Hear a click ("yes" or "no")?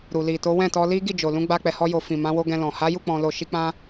no